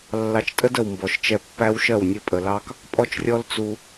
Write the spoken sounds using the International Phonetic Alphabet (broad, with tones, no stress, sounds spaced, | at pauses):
lː ɑ˧ t͡ʃ tʼ ə˦ d ə˨ w m b ɔ˨ ʃ t͡ʃ ɛ˧ pː æ˦ w ʃ ɜ˦˨ w nʲ ɘ˦ pʼ ə˨ l ɑ˦ k | pʼ ɔ˦ t͡ʃ rʲ ɔ˦ l t͡s u˧